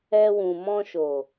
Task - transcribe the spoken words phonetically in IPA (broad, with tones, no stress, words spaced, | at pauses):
ɛ˧wũ˨ mɔ̃˧ʃo˨